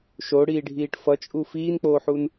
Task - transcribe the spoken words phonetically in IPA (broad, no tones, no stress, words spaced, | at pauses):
ʃoɽiːɖʱiːʈ fʌt͡ʃʼu fiːnk͡poːħun